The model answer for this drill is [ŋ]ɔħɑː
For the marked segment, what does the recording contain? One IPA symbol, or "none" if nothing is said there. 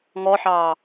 ŋ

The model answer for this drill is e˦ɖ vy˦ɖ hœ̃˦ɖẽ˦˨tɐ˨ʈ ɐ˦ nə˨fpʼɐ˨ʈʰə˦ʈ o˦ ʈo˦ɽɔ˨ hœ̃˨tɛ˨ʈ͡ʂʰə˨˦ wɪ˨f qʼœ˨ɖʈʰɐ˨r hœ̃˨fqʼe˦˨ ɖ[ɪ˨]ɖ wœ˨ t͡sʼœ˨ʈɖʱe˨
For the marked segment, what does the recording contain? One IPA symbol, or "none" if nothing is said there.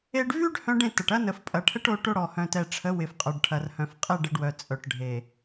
ɪ˨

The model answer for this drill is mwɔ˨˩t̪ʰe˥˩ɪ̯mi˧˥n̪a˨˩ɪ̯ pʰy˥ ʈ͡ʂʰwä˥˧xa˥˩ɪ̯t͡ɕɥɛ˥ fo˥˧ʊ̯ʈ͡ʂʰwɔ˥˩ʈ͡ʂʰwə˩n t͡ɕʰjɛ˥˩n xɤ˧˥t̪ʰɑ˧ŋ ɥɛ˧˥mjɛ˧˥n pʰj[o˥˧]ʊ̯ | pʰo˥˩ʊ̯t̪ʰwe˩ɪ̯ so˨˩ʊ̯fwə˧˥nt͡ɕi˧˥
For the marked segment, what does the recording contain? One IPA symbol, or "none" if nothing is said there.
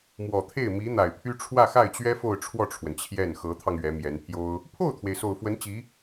o˥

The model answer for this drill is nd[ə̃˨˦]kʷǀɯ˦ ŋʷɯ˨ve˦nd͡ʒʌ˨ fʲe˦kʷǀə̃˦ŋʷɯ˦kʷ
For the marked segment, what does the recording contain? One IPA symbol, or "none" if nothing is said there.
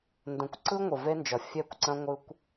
ə̃˨˦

